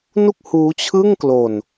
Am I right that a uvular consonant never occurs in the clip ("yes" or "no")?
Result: yes